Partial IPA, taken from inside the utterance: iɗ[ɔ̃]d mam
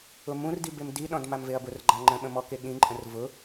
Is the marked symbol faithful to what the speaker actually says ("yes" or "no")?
yes